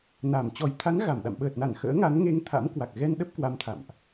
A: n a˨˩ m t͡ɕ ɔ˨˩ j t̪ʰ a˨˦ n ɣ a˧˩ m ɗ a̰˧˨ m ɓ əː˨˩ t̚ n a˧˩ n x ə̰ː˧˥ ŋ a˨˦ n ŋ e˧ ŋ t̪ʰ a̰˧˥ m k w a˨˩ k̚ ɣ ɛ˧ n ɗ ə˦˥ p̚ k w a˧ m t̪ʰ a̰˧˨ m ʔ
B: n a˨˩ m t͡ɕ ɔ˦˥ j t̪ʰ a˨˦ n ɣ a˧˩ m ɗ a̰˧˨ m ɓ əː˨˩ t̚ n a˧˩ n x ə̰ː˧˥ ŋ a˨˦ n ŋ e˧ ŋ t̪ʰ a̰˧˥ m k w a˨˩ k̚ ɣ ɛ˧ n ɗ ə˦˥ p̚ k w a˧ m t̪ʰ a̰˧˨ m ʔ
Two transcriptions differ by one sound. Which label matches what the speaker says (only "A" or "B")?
A